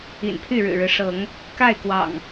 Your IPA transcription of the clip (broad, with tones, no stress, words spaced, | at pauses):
ḭ˨˩npʰy˥˨ɻɻ̩˨˩ɻɻ̩˦ ʂɤ˨˦ŋ | ka˥˨ɪ̯kwɑ̰˨˩ŋ